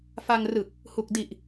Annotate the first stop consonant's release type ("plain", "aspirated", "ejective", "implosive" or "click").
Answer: plain